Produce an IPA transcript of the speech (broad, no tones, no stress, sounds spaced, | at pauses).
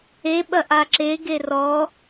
e ɓ ɐ ʔ a ǁ e ɡ e r ɔ